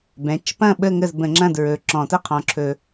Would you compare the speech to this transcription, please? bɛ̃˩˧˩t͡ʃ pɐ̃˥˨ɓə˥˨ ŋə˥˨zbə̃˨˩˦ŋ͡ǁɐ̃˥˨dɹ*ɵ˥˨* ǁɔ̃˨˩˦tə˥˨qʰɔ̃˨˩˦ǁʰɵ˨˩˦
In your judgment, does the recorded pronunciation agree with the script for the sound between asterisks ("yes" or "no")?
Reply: no